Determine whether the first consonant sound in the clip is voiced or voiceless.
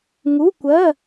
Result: voiced